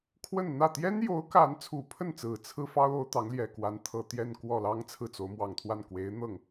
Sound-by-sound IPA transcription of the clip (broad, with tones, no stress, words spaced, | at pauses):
kʰwə˥˧nn̪ä˥˩ t̪jɛ˥njo˧˥ʊ̯ka˧˥n t͡sʰu˨˩pʰə˥˩nt͡sɹ̩˨˩ t͡sʰɹ̩˥ fɑ˥ʊ̯o˧˥ʊ̯ t̪ɑ˧˥ŋljɛ˨˩kwa˧˥n t̪ʰɤ˨˩t̪jɛ˥˧n kwɔ˥˩ lɑ˥ŋ t͡sʰɹ̩˥˩t͡so˧˥ʊ̯ mwɑ˨˩ŋt̪ʰwa˥˩n kwe˧˥ɪ̯n̪ɤ˥˩ŋ